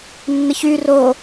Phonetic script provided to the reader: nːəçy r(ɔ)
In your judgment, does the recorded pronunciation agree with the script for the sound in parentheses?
no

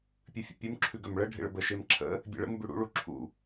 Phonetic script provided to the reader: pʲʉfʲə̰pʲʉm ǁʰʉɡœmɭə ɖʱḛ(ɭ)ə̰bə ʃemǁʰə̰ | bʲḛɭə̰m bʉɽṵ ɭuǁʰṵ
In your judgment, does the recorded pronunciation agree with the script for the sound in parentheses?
yes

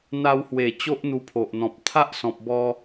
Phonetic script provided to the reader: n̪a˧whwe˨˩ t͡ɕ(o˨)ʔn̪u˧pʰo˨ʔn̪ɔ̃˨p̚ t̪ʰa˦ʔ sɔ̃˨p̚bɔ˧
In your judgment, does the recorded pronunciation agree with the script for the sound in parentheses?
no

